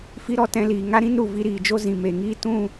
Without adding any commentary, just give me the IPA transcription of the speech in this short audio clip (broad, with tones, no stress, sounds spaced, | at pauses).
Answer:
f i˦ ɾ ɔ˦ t ɛ̃˧ l iː˨ ŋ a˦ ɾ ĩ˦ n ɾ u˨ v i˧ ɾ iː˨ d͡ʒ o˦ z ĩ˨ m e˨ ŋ iː˦ t ũ˦˨